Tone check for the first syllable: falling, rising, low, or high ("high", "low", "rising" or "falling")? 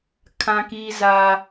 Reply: high